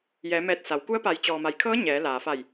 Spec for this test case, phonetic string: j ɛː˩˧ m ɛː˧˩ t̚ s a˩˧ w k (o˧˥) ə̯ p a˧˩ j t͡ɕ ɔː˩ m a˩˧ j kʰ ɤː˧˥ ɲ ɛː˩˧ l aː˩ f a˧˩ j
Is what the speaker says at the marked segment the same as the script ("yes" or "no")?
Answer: no